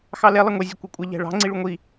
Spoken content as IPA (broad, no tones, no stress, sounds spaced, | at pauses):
x ɑ l ɛ lˠ ɐ ŋʷ ɛ zʲ ɐ kʷ ɛ kʷʼ ɐ ʎ æ̤ ɭ ɑ̤ ŋ͡ǀ i ɭ u ŋʷ i